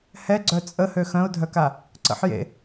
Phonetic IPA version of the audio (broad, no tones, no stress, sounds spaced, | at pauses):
h ɛ ɡ͡ǀ œ t͡sʼ ə h ø x œ̃ ʊ̯ dʱ œ k a | ǀ ə̰ ħ j ḛ